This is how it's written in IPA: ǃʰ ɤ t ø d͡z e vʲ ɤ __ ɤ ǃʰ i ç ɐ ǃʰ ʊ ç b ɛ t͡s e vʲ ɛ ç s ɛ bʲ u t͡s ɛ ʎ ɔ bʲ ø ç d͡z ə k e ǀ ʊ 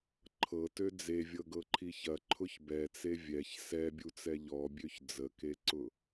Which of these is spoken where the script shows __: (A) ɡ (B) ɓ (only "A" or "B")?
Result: A